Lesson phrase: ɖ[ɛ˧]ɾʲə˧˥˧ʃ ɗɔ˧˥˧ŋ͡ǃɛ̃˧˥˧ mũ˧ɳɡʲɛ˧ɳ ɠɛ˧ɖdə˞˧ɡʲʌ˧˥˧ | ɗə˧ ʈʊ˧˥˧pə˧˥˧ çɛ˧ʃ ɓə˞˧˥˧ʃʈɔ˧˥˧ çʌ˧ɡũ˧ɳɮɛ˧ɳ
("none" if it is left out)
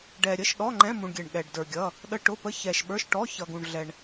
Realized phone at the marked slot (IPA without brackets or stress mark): ɛ˧